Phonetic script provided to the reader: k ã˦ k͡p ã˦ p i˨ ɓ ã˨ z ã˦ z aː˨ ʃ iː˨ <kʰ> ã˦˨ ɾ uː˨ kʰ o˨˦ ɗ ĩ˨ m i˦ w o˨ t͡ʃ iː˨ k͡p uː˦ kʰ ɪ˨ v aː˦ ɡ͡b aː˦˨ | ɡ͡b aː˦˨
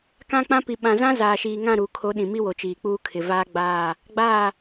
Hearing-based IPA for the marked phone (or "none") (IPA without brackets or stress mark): ŋ